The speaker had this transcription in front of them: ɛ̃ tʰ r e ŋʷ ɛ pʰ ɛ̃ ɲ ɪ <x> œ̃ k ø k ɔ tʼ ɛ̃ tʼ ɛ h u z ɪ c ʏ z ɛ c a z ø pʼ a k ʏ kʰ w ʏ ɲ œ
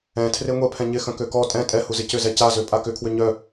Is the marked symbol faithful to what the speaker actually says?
yes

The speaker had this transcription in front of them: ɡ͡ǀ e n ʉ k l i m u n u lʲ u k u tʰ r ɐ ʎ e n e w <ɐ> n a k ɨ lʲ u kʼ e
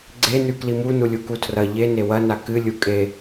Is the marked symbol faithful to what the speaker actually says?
yes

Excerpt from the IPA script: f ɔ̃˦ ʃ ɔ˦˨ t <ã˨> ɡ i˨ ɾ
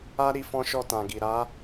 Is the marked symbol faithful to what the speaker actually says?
yes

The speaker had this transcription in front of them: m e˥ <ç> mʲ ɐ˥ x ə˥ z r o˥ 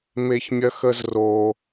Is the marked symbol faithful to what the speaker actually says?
yes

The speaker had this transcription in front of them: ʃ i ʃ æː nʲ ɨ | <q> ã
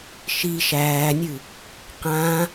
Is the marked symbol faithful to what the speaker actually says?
yes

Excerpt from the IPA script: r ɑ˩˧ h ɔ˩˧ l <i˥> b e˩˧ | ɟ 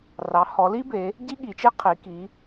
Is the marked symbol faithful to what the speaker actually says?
yes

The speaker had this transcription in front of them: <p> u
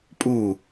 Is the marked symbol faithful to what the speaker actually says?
no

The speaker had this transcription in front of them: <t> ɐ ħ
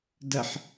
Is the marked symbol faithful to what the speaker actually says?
no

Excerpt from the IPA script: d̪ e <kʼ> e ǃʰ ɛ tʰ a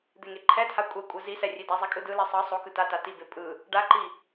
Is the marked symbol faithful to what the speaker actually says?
no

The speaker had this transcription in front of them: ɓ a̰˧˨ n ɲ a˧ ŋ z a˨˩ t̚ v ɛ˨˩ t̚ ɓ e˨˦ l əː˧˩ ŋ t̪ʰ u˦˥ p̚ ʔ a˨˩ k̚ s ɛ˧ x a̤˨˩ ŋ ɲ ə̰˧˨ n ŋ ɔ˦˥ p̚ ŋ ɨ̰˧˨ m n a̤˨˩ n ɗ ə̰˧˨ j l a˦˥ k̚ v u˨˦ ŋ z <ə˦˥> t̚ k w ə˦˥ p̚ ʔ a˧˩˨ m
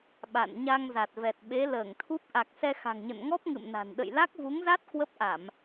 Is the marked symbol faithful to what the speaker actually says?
no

